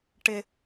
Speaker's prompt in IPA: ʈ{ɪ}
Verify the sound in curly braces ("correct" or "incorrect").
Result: correct